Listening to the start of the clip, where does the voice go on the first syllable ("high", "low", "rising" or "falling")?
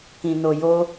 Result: low